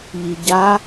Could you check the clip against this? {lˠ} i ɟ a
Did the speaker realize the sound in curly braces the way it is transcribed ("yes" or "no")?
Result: no